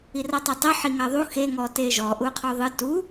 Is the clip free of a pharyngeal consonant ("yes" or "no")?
no